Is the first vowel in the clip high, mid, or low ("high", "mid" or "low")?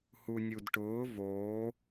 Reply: high